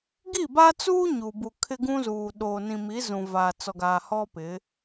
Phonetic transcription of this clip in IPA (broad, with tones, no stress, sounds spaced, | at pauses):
ɡ i˦˨ b a˦ t͡s uː˦ ɲ u˨ b u˨ kʰ ɪ˦ ɡ ũ˦ z uː˨ ɗ oː˨ n ĩ˨ m i˨˦ z ũ˨ v aː˨ t͡s ɔ˨ ɡ aː˨ h ɔ˦ p ɪ˨˦